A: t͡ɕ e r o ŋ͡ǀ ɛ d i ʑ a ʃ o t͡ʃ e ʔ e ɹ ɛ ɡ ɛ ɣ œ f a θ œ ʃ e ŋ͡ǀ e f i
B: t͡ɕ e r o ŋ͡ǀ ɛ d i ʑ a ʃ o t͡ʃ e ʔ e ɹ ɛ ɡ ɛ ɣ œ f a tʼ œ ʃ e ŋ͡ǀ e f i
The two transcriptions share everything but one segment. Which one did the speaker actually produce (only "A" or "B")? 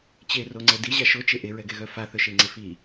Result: A